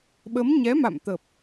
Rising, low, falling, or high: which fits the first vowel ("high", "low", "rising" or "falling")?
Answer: rising